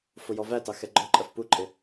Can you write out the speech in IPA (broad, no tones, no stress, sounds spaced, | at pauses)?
f ʊ j ɔ v æ t ɑ x ɛ ɡ͡ǃ ɔ ǃʼ ɜ f p u ǃʼ ɪ